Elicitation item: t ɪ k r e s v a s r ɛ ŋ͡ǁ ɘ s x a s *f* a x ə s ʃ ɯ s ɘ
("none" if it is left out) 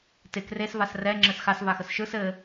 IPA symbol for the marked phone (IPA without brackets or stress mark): v